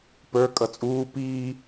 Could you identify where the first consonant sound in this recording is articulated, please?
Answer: labial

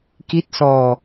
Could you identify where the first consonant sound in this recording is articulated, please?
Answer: velar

